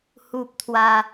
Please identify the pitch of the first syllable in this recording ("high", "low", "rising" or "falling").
high